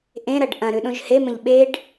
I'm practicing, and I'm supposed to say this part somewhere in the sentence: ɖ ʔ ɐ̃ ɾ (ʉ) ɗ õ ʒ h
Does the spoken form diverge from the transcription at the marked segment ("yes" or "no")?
no